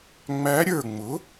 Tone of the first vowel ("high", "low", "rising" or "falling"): rising